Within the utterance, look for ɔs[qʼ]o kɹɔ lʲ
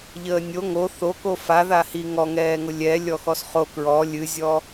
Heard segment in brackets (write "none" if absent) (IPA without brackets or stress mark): χ